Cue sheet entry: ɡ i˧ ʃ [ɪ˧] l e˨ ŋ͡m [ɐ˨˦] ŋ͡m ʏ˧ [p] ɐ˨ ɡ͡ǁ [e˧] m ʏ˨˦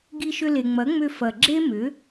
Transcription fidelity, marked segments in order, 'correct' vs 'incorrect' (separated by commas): incorrect, correct, incorrect, incorrect